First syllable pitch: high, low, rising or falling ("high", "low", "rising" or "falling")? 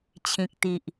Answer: low